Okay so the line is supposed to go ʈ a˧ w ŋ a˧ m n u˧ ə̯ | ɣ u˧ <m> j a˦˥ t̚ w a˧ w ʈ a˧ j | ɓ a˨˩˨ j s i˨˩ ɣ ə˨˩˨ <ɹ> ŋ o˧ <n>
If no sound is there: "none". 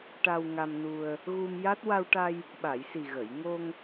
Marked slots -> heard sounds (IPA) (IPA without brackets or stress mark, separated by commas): m, j, ŋ